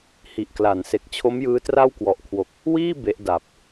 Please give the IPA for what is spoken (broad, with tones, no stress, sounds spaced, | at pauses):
h i˨˩ ʔ k l a˩˦ n s e˨˩ k̚ t͡ɕʰ o˦˥ m j ɯː˦˥ t r a˥˩ w k w ɔ˨˩ ʔ kʰ w o˨˩ k̚ | w iː˥˩ b e˦˥ ʔ d a˨˩ p̚